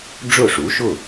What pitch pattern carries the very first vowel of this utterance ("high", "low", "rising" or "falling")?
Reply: falling